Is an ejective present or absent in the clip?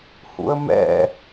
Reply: absent